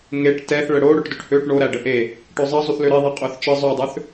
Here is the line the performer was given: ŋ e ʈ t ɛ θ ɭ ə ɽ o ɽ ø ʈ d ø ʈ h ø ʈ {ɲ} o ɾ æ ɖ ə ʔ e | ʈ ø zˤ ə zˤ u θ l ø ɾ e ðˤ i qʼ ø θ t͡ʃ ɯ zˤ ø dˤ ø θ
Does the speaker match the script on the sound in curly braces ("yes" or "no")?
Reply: no